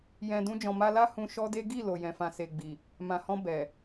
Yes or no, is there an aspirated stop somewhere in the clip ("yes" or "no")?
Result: no